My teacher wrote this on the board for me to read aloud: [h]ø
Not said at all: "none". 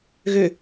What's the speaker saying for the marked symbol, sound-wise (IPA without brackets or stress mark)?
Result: ɣ